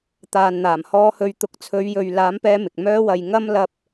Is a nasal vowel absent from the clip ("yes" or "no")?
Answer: yes